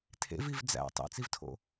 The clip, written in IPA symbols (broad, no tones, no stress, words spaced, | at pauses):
tʰḛviv d͡zæ̰ tˤḛt͡sivtʰo̰